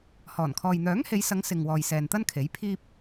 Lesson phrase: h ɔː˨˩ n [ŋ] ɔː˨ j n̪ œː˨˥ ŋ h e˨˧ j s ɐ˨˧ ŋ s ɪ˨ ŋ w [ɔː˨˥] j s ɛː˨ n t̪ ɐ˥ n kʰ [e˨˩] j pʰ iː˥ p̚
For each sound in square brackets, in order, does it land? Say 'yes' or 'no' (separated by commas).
no, no, no